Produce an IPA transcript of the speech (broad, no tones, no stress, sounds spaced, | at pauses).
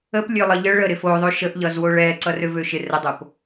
ə p lʲ ø lˠ ʌ ʎ ə ɭ ə ɾ ɪ f o ðˤ ø ʃ ə ʔ ʎ ʌ z w o ɭ ɛ ǀ ʌ r ø v ø ʃ ɪ r ə dˤ o p